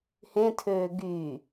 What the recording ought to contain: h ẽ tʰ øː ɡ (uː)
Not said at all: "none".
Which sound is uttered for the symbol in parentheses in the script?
yː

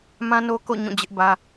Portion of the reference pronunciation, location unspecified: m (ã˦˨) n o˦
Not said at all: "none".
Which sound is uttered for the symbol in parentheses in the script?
ã˦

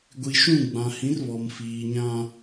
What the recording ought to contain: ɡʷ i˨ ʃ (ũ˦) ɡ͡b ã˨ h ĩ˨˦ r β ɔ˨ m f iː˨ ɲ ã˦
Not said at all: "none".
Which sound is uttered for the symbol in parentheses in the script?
ũ˦˨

